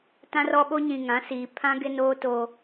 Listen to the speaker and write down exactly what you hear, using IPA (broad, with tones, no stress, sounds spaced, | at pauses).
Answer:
t ã˦ r ɔ˦ ɓ o˦ ɲ ĩ˨ ŋ ã˨˦ s iː˨ pʰ ã˦ ɡ ɪ˦ n oː˦ t oː˦